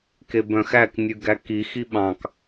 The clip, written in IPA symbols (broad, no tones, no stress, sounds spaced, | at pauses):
k e b œ̃ x æ k nʲ ʉ ɡ æ k i x i ɓ ɑ̃ k